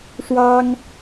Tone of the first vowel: high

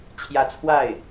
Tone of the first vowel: rising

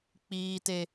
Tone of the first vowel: high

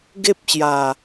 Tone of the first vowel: high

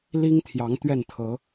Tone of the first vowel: high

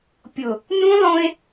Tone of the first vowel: low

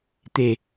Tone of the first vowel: low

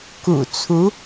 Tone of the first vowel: low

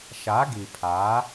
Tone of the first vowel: rising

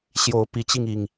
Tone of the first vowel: rising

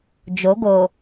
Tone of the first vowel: rising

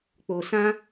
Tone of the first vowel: low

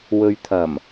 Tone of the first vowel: low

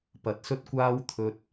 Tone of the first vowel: rising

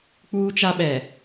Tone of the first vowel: high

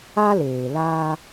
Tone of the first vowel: high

